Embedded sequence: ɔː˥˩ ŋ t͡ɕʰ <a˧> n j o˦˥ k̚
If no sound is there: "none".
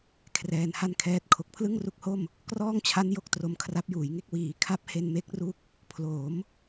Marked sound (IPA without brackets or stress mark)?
a˦˥